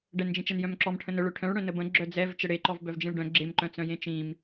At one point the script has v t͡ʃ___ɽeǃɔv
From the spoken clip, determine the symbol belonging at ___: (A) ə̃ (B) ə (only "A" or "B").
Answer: B